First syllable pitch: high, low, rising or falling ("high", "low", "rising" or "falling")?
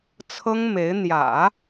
high